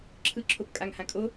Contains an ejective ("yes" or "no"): yes